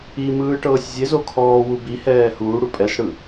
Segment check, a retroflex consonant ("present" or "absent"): present